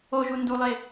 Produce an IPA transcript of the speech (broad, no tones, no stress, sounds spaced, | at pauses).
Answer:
o ʒ u n d u lˠ e